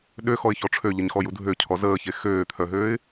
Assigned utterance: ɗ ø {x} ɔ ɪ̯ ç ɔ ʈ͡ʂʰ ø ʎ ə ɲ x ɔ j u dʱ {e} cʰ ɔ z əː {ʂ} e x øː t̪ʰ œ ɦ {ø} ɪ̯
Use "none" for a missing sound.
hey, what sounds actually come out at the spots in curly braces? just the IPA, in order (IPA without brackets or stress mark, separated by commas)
x, ø, ç, øː